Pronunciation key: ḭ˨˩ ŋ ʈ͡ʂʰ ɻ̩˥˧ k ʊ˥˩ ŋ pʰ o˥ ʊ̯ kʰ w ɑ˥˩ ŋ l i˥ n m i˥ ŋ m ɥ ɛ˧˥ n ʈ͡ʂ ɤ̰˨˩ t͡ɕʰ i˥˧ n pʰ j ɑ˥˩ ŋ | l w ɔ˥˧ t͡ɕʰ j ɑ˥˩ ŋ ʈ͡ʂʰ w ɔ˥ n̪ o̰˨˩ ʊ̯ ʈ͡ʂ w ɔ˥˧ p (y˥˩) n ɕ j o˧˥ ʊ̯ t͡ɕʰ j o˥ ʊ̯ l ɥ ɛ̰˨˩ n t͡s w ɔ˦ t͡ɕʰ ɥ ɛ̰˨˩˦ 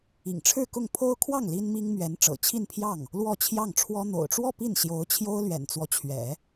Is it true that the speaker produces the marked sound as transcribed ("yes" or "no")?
no